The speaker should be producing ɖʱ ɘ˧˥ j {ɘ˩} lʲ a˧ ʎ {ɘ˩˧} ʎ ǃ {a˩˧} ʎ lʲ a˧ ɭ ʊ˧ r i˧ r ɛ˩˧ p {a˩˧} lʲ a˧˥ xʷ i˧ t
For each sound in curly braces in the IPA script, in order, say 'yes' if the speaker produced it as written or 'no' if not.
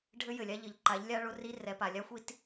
yes, yes, yes, no

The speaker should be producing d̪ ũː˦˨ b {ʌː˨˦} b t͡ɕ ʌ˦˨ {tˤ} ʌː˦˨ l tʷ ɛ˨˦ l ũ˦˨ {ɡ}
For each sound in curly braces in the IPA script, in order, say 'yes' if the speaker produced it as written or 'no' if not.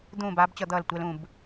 no, no, no

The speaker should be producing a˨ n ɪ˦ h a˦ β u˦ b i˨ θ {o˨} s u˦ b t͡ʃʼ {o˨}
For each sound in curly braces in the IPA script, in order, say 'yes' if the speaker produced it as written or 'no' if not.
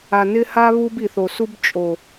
yes, yes

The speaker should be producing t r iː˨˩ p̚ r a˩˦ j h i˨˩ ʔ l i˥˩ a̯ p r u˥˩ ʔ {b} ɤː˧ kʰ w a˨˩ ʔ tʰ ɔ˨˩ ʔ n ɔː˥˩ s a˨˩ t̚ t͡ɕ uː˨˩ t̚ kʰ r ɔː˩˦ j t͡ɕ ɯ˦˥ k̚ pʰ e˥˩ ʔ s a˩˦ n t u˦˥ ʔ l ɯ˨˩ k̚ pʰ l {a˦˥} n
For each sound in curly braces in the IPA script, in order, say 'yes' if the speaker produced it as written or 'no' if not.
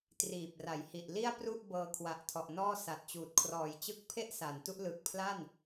yes, no

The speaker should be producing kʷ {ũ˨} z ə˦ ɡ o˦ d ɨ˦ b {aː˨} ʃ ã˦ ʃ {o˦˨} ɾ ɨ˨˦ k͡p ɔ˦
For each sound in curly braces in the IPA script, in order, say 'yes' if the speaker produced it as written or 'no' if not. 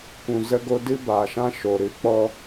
yes, yes, no

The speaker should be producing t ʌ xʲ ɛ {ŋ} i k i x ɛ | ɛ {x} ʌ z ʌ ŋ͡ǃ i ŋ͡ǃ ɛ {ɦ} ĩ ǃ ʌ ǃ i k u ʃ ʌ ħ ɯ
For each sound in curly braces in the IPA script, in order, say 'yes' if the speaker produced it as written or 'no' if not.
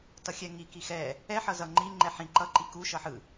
yes, no, no

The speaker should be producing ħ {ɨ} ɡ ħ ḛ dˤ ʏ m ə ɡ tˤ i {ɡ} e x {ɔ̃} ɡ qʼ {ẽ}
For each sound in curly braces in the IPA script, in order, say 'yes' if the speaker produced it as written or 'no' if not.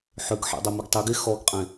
no, yes, no, yes

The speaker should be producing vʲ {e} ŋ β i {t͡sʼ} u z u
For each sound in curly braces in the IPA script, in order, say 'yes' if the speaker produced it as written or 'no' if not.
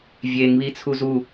yes, no

